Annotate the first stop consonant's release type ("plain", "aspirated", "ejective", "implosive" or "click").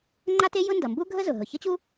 click